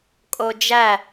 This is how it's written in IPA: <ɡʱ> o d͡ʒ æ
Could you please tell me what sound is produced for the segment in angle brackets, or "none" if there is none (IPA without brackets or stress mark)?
kʼ